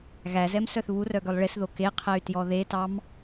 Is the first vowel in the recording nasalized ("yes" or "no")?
no